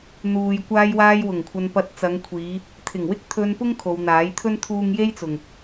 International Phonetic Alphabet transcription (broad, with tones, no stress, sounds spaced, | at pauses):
n̪ uː˨ j kʷ aː˧ j w aː˧ j w ʊ˨˩ ŋ kʷʰ ɐ˧ n p ɐ˧ t̚ t͡s ɐ˨˧ ŋ kʷʰ iː˨˧ | t̪ʰ ɪ˨˩ ŋ w ɪ˥ k̚ t̪ʰ ɵ˧ n p ʊ˥ ŋ kʰ o˨˧ w n̪ aː˨˥ j t̪ʰ ɵ˥ n t̪ʰ uː˥ ŋ j e˥ j t͡s ʊ˨ ŋ